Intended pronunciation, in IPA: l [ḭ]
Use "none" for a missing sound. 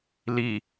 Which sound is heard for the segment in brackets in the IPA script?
i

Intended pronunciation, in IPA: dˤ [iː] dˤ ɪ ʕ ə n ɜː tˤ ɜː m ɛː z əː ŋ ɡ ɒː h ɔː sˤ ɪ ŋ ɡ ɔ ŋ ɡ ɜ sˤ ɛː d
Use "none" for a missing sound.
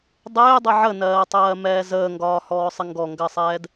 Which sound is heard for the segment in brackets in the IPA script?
ɪː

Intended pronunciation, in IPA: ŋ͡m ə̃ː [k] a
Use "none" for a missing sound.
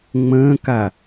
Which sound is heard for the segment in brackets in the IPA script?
k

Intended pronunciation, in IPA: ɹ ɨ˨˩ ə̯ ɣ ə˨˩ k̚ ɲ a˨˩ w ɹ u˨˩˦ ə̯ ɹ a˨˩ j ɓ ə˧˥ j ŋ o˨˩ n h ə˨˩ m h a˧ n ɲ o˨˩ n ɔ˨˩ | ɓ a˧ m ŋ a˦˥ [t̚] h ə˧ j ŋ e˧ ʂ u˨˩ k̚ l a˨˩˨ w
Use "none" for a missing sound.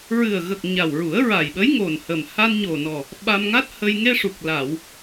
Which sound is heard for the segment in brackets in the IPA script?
t̚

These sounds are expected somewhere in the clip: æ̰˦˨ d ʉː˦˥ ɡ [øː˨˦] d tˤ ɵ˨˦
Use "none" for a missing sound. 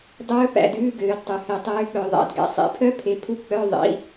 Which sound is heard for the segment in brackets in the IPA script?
øː˨˦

